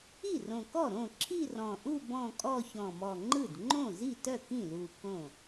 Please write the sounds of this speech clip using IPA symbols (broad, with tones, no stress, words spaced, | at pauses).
i˥˩rõ˨˩kɔ˥˩ɾõ˥˩ ǁʰi˥˧rɔ̃˨˩ʔu˥˧ bɔ̃˥˧kʼɔ˥˧ çɔ̃˨˩mɔ˨˩ŋ͡ǃɯ˥˩d ŋ͡ǃõ˥˩zi˥˩tœ˥˩ kĩ˥˩lu˨˩ kõ˥˩